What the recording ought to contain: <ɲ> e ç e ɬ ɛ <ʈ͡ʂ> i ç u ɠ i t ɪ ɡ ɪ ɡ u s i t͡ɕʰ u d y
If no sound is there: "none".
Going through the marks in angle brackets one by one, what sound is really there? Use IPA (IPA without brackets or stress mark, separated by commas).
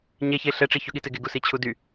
ɲ, ʈ͡ʂ